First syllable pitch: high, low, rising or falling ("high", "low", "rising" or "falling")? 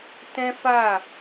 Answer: high